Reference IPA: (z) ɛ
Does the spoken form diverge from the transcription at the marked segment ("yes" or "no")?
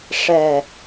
yes